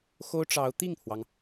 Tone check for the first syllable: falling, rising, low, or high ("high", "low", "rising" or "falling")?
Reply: high